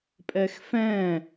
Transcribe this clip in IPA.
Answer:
pʼ ɛ x f ɛ̃

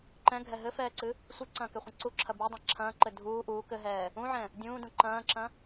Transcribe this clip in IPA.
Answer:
ǃ ɛ̃ ɡʱ ɛ ɦ ɘ f ɛː ǀ ɨ | sʷ ɨ ǀ ɐ̃ː k ɛ χʷ ɐ̃ ǀ u ǁʰ ɐ b u dˤ ɛ̃ ǁʰ ɐ̃ː ǃ ɘ dʱ uː ʔ uː k ɘ ɦ ɛː | ũ ʕ ɛ̃ | dʲ ũː d ũ ǃ ɐ̃ː ǁ ɐ̃

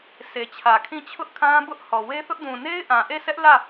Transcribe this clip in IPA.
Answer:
sʰ e˨ t͡ɕʰ ä˨ kʰ ĩ˦˨ t͡ɕʰ ʊ˦ ʔ kʰ ã˦ b ʊ˦ ʔ h ɔ˨ w e˦ θ ʊ˦ ʔ d ũ˨ n e˦ ɪ̯ ʔ ã˨ ʔ e˦˨ sʰ ɛ˦ ʔ l ä˦˨

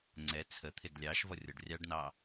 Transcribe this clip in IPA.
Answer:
ŋ͡ǀ ɛ t͡sʰ ə t̪ʰ ɪ d lʲ ɑ ʃ v ɔ rʲ ɔ ɖ rʲ ɑ ɖ n ɑ

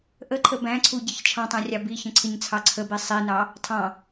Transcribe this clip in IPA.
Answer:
ʔ ə ǃʰ ə b æ̃ ǀʰ u ɟ ɪ ç t͡ʃʰ ɑ̃ tˤ æ̃ rʲ ɑ b i ç ə̃ ǀʰ ɪ ɲ t͡sʰ ɑ ǀʰ ə b i sˤ i n ɑ | tʰ ɑ̃

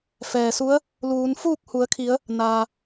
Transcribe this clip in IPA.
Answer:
f ɛː˩ s u˧˥ ə̯ | l uː˩˧ n f uː˥˨ k̚ h u˩˧ ə̯ kʰ i˩˧ ə̯ | n aː˩

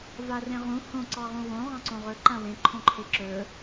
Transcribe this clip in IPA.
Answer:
v a r ẽ ʁ ũ h õ ǀ ɑ ʁ ũ w õ ʁ ɑ̃ ǀ õ ʁ ɵ ǃ ã w ẽ ǃʰ õ ǃʰ e ǁ ɵ

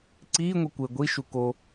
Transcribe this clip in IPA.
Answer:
ǀ iː ŋʷ i kʷ e ɡʷ i ʃ u k o

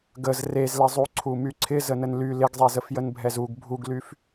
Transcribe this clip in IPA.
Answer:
ɡ ə z r e z l ɪ zˤ u ǀʰ u m y ǀʰ ɪ z ə n ə n l y l ɪ ɡ zˤ e z ə f j ə n bʱ ɛ z u ɡ bʱ u ɡ l y f

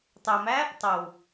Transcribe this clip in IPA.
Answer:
tˤ æ m æ | tˤ ɐ w

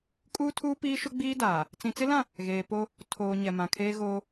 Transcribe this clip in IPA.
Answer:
kʼ uː˦ tʰ uː˦ p iː˦ ʃ ʊ˦ ɡ͡b iː˦ d aː˨ | t͡s ĩ˨ t͡s ɪ˦ l ã˦˨ | ɣ eː˨ p o˦ | tʰ oː˨ ɲ ɛ˨ m ã˨ kʰ eː˦ ɣ oː˦

